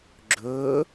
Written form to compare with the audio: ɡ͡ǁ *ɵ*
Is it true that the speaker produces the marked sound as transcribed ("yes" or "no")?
yes